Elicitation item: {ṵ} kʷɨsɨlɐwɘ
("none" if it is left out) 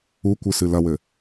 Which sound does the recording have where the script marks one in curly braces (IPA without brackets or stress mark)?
u